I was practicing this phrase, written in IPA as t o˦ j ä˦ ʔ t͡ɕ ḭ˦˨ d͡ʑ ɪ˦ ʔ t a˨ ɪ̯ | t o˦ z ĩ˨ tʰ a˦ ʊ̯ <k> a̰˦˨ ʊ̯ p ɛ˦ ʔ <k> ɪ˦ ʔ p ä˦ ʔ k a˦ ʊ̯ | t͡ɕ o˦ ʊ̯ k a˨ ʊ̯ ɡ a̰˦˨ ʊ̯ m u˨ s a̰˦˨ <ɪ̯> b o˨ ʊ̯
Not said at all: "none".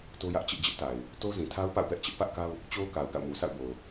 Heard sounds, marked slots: p, t͡ɕ, ʊ̯

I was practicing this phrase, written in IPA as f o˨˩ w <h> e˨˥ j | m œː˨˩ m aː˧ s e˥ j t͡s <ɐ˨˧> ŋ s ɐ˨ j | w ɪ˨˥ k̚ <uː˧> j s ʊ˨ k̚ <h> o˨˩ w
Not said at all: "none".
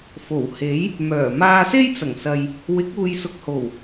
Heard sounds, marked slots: h, ɐ˨˩, uː˨, h

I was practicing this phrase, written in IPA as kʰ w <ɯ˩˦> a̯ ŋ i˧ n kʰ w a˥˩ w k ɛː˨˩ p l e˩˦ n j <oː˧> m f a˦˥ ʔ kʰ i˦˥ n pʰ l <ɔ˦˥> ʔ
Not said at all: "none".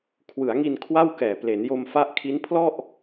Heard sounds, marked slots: ɯ˩˦, o˧, ɔ˥˩

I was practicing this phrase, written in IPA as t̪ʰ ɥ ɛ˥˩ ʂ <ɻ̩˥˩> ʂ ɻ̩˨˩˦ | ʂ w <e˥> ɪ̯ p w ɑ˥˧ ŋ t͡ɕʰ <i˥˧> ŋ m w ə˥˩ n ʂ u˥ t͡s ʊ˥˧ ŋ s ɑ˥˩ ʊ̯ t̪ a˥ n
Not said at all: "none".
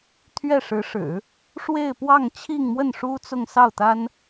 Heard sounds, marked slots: ɻ̩˧˥, e˥˧, i˥˧

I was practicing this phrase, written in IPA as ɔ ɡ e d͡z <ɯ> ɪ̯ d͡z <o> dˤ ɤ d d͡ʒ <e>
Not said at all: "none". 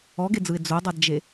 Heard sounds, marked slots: ɯ, o, e

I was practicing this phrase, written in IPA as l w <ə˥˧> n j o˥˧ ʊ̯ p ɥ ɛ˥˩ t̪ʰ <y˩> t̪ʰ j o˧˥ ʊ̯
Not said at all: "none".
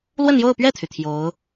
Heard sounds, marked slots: ə˥˧, y˩

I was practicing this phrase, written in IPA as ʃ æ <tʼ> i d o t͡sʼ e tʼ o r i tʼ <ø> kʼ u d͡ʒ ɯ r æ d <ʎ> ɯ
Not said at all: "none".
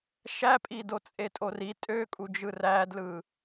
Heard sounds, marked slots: pʼ, ø, l

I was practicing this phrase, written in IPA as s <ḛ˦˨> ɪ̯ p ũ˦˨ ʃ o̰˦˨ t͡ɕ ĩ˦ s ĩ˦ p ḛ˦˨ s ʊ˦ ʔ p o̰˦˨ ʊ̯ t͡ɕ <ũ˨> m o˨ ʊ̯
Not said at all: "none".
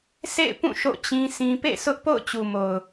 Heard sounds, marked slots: ḛ˦˨, u˨

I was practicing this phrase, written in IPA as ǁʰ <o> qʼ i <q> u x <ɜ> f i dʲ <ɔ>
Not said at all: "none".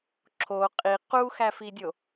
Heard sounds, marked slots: o, q, æ, o

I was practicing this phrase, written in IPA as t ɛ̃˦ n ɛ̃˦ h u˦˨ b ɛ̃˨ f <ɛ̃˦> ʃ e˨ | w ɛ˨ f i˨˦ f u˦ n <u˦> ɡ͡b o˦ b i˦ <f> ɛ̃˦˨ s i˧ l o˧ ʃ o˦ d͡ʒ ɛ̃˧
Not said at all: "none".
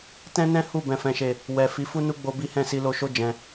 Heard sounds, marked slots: ɛ̃˨, u˦, h

